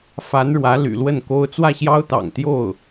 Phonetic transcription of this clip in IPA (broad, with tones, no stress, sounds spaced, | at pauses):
f a˧˥ n ɻ w ä˧˥ l y̰˨˩ l w ə˥˩ n k o˥ ʊ̯ t͡s w ä˥˩ ɕ j ɑ˥ ʊ̯ t̪ ɑ̰˨˩ ŋ t̪ j o˥˩ ʊ̯